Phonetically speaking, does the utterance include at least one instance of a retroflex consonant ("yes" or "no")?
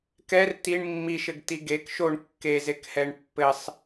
yes